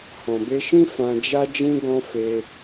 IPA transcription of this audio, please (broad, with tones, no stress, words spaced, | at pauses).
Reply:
hɔ̃˨be˧ʃĩ˦ fã˧d͡ʒa˦d͡ʒĩ˦ ɡɔ̃˦ fe˧